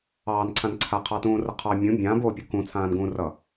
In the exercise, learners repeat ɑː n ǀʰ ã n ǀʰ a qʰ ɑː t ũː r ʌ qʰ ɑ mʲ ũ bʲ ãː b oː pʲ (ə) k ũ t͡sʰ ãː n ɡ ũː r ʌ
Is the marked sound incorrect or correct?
incorrect